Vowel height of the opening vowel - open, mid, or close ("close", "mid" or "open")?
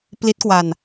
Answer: close